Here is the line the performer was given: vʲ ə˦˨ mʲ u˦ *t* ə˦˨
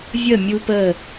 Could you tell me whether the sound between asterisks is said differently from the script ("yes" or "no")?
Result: yes